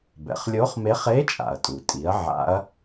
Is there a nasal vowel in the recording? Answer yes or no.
no